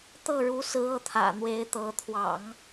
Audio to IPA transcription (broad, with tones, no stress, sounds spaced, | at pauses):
t̪ ɤ˥˩ ɻ u˧˥ s ɹ̩˧˥ ɤ˧˥ t̪ʰ ä̰˨˩ n̪ w e˧˥ ɪ̯ t̪ ɤ˧˥ t̪ʰ w ɑ̰˨˩˦ ŋ